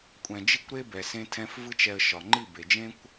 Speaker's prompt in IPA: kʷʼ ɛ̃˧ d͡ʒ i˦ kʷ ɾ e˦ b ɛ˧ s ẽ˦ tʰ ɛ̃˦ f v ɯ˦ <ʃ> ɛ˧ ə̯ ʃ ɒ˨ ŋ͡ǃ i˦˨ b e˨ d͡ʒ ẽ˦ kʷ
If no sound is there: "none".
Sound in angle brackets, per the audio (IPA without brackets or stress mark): t͡ʃ